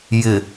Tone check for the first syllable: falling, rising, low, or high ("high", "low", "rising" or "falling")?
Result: low